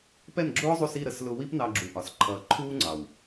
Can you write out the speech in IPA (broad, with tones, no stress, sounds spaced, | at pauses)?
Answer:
p ɛ˦˨ n ɡ͡ǁ ʊː˦ zˤ u˧ s i˦˨ ɾ ə˦ s l ʊ˧ w i˦ p n ɑ˧ ɡ͡ǁ u˨ ʔ ɒ˨ s ǃʰ ʌː˨ ǃʰ uː˦ ŋ͡ǀ ɑ˨ w